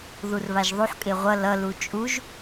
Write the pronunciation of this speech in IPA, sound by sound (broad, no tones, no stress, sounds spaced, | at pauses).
ð u r β a ʒ ðˤ u ħ kʼ e ʁʷ ʌ l ʌ l u t͡ʃʼ u ʒ